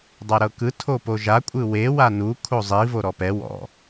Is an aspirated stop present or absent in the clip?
present